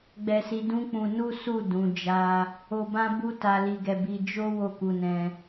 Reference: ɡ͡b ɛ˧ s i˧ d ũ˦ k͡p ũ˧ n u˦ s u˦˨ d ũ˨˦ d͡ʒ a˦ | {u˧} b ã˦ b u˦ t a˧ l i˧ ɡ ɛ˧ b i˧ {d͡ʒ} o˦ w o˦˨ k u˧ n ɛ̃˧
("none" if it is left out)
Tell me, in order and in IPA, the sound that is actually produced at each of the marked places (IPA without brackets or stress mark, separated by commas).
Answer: o˧, d͡ʒ